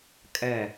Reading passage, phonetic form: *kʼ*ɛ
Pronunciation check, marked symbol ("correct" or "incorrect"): correct